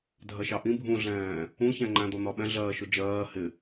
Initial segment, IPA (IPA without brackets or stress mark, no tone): dʱ